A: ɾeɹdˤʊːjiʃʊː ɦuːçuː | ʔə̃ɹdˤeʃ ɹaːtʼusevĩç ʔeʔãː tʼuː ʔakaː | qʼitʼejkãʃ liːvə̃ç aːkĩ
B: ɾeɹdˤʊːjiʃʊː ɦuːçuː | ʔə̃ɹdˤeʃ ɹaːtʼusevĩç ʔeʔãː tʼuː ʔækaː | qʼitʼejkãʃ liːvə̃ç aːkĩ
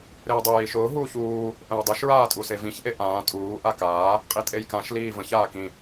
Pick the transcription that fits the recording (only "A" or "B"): A